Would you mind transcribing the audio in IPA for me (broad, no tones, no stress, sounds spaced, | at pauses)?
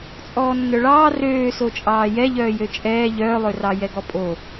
t͡sʼ ɔː nː œ ɭ ɑː r øː s o t͡ʃʼ ɑː j ɛ ʎ œː j ø t͡ʃʼ ɛː ʎ œː lˠ ø r ɑ j ɛ ɡ ɔ pʼ o